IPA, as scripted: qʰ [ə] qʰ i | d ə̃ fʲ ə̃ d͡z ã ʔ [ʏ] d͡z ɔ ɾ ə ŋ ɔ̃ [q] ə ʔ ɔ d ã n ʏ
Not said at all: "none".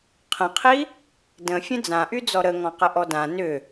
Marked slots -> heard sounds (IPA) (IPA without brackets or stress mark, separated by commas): ə̃, y, q